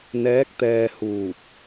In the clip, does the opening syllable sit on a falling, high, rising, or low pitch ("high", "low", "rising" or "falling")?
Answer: rising